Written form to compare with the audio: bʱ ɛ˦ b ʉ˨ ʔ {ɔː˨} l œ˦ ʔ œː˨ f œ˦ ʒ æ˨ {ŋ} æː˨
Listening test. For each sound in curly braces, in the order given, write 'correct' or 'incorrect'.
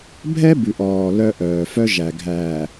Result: correct, incorrect

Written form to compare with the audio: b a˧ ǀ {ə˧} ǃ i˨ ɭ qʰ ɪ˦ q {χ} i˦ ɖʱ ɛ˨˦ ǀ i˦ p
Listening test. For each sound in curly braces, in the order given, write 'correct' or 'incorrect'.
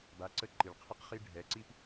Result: incorrect, correct

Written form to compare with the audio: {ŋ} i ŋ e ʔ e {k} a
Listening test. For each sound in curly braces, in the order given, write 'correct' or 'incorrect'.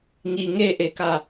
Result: correct, correct

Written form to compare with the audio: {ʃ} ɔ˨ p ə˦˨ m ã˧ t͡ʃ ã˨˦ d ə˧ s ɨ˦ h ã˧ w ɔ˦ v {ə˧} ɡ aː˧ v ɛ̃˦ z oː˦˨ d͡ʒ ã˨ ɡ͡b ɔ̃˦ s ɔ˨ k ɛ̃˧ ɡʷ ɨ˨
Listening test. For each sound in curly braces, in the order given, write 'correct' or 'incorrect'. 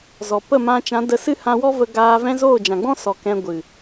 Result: incorrect, correct

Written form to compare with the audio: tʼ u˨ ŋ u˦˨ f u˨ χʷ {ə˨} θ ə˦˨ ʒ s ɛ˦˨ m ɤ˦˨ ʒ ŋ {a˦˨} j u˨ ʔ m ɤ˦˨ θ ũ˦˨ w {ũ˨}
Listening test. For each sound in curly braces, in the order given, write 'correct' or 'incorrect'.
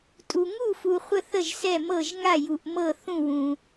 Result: incorrect, correct, correct

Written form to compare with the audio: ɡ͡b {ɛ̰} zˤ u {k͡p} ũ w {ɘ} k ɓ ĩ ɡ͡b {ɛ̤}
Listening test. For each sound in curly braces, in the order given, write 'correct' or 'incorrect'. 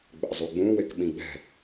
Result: correct, incorrect, incorrect, correct

